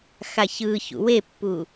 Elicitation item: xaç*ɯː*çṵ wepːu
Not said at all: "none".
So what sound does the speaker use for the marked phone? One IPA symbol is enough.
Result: ɯː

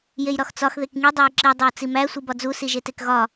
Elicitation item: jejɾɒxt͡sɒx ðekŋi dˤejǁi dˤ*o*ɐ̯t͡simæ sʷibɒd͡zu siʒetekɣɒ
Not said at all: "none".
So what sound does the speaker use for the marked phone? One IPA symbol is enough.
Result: o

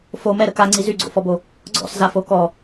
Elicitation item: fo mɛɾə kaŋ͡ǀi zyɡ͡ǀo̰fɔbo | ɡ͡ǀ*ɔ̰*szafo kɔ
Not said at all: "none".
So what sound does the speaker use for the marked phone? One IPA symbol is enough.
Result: ɔ̰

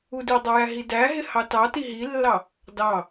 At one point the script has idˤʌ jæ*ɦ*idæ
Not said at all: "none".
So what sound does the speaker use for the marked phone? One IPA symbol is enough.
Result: ɦ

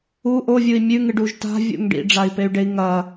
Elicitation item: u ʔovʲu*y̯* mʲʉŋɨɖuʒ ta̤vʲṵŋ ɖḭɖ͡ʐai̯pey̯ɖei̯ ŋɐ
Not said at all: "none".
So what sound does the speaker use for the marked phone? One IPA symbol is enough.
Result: i̯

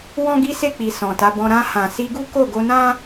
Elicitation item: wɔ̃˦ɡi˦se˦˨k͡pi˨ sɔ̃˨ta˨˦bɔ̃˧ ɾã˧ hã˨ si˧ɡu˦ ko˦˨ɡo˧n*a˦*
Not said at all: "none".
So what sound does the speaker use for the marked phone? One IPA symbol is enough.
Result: ã˦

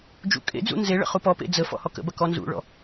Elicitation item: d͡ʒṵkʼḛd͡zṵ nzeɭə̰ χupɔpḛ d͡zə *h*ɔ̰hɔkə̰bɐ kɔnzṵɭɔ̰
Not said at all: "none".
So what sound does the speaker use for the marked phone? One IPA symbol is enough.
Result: f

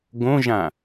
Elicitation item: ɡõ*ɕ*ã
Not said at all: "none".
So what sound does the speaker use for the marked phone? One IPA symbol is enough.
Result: ʒ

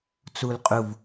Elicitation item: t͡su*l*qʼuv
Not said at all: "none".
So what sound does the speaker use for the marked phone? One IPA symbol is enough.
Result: l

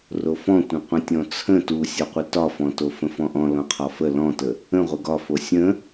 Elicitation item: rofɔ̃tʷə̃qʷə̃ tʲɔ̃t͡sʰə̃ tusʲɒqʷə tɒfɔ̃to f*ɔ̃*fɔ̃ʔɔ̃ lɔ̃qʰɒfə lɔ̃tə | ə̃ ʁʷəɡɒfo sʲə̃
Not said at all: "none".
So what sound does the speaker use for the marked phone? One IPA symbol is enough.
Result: ə̃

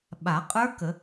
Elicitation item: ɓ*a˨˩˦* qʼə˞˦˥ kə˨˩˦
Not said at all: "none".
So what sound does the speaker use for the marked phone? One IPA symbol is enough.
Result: a˨˩˦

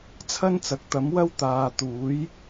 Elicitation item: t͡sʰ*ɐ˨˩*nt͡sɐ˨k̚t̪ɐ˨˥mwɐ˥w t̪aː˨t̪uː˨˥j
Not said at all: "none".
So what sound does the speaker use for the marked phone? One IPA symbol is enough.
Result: ɐ˥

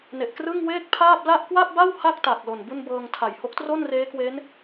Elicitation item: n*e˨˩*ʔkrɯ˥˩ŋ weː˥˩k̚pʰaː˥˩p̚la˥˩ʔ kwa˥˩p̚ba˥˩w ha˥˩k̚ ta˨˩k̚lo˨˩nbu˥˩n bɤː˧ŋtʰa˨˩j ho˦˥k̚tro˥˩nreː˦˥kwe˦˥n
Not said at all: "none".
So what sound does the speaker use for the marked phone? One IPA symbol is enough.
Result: e˨˩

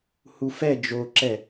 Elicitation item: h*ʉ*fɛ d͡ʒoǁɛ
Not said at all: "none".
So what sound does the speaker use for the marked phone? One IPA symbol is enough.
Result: u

